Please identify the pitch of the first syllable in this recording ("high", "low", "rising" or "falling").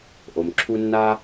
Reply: low